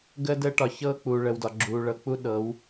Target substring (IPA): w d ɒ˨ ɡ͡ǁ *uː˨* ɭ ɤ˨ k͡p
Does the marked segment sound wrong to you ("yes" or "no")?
no